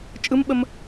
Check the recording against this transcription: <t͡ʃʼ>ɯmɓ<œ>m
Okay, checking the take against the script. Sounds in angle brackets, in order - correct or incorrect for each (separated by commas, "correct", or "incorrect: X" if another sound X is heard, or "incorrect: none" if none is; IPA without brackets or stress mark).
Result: correct, incorrect: ə